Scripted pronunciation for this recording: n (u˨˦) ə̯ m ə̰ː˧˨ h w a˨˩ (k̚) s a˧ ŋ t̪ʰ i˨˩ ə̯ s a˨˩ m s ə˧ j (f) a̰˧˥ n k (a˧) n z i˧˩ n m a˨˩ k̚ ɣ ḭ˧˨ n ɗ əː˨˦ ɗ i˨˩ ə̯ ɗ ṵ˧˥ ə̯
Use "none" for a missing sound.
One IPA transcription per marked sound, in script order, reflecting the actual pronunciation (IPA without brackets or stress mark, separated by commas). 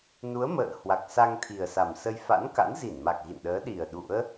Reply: u˨˦, k̚, f, a̰˧˥